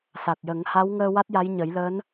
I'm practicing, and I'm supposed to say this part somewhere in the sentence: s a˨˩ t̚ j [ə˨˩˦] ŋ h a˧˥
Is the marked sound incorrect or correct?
correct